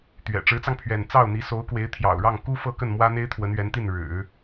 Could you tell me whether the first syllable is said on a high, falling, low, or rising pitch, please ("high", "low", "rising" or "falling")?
low